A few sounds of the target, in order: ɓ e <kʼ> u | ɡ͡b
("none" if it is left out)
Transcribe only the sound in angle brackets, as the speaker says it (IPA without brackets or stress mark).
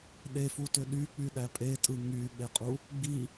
qʼ